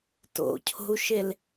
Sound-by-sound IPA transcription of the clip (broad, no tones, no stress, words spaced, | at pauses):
to̰cʰo̤u̯ʃel